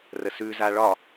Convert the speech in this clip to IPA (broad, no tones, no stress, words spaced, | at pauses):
rəsʉza ɭɒ